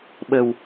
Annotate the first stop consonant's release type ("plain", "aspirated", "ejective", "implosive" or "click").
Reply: implosive